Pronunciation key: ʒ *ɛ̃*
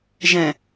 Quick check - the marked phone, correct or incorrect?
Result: correct